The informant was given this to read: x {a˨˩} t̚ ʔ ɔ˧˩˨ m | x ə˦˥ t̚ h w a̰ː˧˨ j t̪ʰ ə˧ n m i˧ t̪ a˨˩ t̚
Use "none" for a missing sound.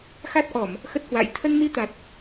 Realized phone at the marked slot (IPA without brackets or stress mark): a˦˥